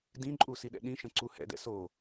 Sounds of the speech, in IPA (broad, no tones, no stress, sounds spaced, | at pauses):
d ĩ ǃʼ u s i ɗ ɛ̰ ɗ ĩ ʃ ə̃ ǀ u h ɛ̰ d ɛ̰ s o